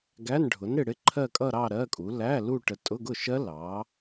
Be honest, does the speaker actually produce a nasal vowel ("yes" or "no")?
no